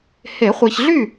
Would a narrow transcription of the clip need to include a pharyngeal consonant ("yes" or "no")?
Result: no